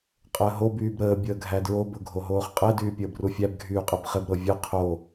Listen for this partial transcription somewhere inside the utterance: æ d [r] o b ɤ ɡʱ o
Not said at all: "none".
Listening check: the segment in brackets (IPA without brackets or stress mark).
ɹ